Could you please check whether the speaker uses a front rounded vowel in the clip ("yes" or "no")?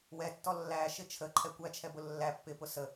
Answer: no